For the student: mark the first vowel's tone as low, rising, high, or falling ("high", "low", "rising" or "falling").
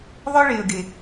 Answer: high